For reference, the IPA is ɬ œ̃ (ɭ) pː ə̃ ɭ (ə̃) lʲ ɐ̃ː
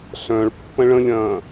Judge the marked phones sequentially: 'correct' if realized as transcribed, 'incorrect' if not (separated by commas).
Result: correct, correct